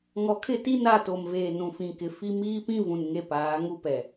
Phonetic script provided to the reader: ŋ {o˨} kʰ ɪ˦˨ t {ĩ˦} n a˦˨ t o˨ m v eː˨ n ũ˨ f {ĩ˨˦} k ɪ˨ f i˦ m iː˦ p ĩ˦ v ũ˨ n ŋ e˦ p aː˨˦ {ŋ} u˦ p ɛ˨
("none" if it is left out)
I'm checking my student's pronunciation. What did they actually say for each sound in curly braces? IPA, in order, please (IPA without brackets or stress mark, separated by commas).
ɔ˨, i˦, ĩ˨, ŋ